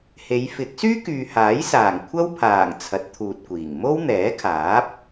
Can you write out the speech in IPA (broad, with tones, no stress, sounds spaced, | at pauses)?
h e˨˧ j f ɪ˨˥ k̚ s yː˥ k yː˨ h aː˨˥ j s aː˨˩ ŋ kʷʰ ɐ˥ w pʰ aː˨˩ ŋ t͡sʰ ɐ˨˥ t̚ t̪ʰ uː˨ t̚ kʷ iː˨˩ ŋ m o˥ w n̪ ɛː˨˥ kʰ aː˨˥ p̚